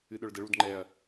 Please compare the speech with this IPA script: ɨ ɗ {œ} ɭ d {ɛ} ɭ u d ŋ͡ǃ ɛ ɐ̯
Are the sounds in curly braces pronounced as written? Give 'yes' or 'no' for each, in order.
yes, no

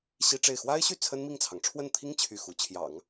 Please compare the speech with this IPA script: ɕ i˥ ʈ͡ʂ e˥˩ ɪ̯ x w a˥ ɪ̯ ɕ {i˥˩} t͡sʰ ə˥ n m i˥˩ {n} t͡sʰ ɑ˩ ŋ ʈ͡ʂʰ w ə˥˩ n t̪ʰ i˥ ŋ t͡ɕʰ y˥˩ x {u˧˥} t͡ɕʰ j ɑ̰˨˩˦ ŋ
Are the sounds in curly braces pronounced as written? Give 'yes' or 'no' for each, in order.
no, no, yes

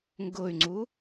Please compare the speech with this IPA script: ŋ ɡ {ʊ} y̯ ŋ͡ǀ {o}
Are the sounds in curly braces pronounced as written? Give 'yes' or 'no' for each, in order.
yes, no

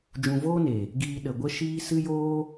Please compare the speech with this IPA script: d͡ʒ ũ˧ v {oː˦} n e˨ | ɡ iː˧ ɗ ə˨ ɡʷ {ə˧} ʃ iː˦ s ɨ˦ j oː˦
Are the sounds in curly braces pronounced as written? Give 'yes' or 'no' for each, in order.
yes, no

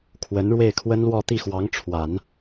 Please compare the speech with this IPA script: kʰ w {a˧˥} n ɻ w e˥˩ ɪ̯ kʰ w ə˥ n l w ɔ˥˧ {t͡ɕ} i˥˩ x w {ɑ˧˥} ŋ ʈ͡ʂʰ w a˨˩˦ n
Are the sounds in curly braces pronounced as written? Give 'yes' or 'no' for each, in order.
no, no, yes

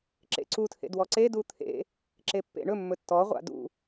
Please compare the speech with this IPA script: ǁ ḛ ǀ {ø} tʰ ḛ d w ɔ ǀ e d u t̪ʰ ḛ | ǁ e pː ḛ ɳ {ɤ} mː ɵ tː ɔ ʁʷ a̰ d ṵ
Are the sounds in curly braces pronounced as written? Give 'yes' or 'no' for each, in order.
no, no

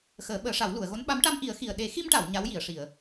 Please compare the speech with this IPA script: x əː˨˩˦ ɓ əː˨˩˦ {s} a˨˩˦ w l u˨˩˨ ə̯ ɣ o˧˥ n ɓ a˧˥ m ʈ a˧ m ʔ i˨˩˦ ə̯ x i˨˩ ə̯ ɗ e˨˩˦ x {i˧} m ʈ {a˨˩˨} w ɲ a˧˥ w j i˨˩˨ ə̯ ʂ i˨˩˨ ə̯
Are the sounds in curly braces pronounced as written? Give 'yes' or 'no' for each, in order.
no, yes, yes

